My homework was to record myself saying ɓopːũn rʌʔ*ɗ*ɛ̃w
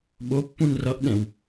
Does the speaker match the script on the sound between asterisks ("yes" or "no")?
yes